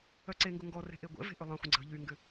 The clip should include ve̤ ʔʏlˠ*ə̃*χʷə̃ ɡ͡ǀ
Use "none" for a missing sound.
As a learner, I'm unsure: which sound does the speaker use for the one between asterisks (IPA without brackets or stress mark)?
ə̃